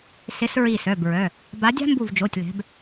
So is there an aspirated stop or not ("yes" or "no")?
no